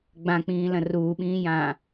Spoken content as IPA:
ɡ͡b ã k͡p ĩː l ɐ̃ r uː ɓ ĩː j ãː

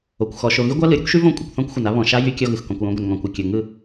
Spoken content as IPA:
o˨ kʷ x ɔ˨ ʃ o˨ ɣ y˦ ɡʷ a˦ l ɯ˨ ɾʲ ʊ˦ kʷ ʃ y˦ v õ˦˨ kʷʼ ɯ˨ kʷ θ ɔ̃˦ kʷ xʷ ɪ˨ n a˦ β ɔ̃˨ ʃ a˦ j y˦ kʲ ɔ˦ ɣ ɯ˨ x k ɔ̃˨ kʷ j õ˨˦ ɡʷ ɪ˨ n ŋ ɔ̃˨ kʷ ɪ˨ kʲ ʊ˨ ŋ ɯ˦˨

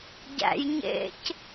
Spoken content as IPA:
ɟ æ̰ j ɲ ḛ c

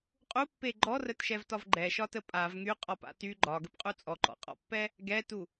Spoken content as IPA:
qʼ u pː e ɡ͡ǃ ɔ r ə t ʃ ɛ v t ɒ v ɡ͡ǃ ɛ ʃ ɒ t ə pʼ a v ŋ y qʼ ɒ p a̰ t y ɡ͡ǃ ɒ ɡ ə p qʼ u t͡sʼ ɔ ǃ ɔ̰ qʼ ɔ̰ pː ɛ | ɡ ɛ t u

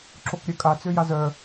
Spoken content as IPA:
ǁ o k ɾʲ œ kʼ a t͡s ø j a z œ

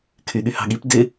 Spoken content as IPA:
kʰ y ɠ y h ɑ̤ ɠ i p d ɪ

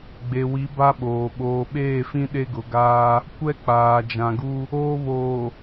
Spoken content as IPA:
ɡ͡b e˨ w i˨˦ b a˦ ɓ oː˨ ɓ oː˨ ɓ eː˦˨ f ĩ˦ ɗ e˦ ɡ ʊ˨ ɡ aː˦ | kʷ ɛ˦ k͡p aː˨ d͡ʒ ã˨ ɡ u˦ | oː˦ β oː˨

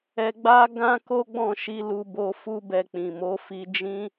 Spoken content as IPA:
ɛ˧ ɡ͡b a˦ ɡ ã˦ k o˦ ɡ͡b ɔ̃˦˨ ʃ i˨˦ l u˧ b o˧ f u˦ b ɛ˧ k͡p ĩ˨ m o˨˦ f i˧ d͡ʒ ĩ˦

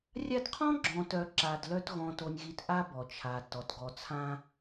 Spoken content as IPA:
rʲ a˦ d qʰ ɔ̃˥ ɡ͡ǁ ɔ̃˨ t œ˨ ǁ a˨ d l œ˦ t ɣ ɔ̃˨ t o˨ nʲ ɣ i˨ t ʔ a˦ b ɔ˩ t͡ʃʰ a˩ t ɔ˩ t ɡ ɔ˨ t͡sʰ ã˦

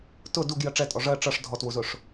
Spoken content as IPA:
t ʊ d u ɡ j ɜ ʈ͡ʂ ɛ tʼ ɔ ʐ ɜ ʈ͡ʂ ʌ ʂ dʱ ɔ t w u z ʊ ʂ

